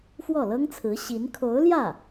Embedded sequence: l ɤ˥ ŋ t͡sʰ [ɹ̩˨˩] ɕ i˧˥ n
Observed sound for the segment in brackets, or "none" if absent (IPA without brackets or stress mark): ɹ̩˧˥